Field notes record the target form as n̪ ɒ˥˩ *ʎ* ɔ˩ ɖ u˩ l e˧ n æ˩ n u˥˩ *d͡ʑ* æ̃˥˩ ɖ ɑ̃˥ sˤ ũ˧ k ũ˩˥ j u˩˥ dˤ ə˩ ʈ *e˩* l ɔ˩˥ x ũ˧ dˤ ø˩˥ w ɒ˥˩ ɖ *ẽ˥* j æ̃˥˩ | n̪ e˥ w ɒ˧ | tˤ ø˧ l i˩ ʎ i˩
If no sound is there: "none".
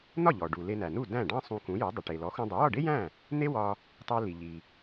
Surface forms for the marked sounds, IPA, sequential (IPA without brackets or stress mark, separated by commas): ʎ, d, e˩, e˥